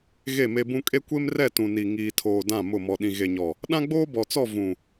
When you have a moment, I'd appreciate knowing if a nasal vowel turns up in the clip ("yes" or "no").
yes